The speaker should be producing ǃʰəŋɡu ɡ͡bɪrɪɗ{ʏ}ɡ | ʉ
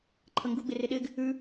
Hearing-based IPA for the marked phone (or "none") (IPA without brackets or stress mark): ɪ